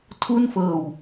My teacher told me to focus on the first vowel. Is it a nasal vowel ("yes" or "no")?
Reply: no